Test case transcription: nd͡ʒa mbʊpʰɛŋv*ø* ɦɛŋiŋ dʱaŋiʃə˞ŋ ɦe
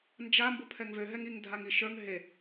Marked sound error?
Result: no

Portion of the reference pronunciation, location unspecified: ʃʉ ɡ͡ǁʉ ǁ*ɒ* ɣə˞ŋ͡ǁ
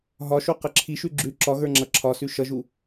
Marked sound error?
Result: no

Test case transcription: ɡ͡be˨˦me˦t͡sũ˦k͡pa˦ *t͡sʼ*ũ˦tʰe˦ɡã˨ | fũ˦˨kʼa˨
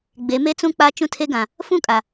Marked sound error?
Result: yes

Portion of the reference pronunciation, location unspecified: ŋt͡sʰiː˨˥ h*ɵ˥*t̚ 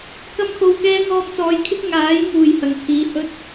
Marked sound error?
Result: no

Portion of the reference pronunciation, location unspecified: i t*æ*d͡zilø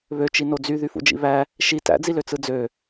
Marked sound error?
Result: yes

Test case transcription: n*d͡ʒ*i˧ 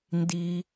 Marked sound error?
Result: yes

